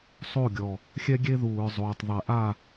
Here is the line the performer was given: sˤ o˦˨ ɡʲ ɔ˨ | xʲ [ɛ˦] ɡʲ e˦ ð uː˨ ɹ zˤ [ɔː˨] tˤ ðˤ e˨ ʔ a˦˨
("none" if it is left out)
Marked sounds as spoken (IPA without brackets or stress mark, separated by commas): ɛ˦, oː˨